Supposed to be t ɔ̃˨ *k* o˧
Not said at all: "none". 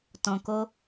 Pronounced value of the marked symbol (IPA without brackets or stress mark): k